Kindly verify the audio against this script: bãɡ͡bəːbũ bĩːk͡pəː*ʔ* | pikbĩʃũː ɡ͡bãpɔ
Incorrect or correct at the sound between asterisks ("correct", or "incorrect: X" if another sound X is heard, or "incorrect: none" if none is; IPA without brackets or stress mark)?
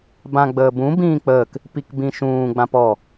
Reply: incorrect: k